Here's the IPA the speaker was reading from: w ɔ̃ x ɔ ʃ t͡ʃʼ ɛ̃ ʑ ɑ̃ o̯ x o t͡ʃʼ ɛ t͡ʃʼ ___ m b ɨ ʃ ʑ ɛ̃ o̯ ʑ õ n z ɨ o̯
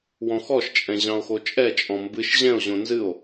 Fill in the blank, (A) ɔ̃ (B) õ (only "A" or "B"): A